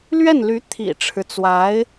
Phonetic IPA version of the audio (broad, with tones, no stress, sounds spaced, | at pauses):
l ɥ ɛ˥˩ n l y˧˥ t̪ʰ ḭ˨˩ ʈ͡ʂʰ ɻ̩˦ t͡s w a˧˥ ɪ̯